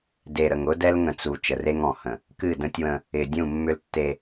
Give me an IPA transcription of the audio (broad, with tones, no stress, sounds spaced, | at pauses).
d e˨ ɾ ə˨ ŋ ʊ˦ d ɛ˦ l ŋ ə̃˨ t͡s u˨ t͡ʃ ə˨ r e˦ ŋ ɔ̃˨ h ə̃˨ | k ɨ˦˨ d ə̃˦ tʲ w ə̃˦ | ɪ˨ dʲ ũ˦˨ mː ʏ˦ l tː e˦